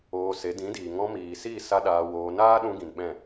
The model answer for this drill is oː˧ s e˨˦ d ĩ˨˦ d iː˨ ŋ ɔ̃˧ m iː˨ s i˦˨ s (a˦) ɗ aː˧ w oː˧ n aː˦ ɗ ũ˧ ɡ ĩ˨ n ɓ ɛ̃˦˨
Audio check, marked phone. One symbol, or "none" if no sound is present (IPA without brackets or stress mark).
a˦